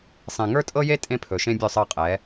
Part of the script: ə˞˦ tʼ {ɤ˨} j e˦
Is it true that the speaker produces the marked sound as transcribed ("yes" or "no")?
no